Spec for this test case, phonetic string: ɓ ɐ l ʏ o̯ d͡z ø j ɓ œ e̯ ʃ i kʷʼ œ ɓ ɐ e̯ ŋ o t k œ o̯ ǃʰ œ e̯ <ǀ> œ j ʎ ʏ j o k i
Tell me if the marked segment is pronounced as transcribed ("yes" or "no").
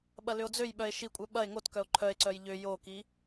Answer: yes